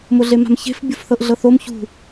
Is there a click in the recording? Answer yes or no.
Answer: no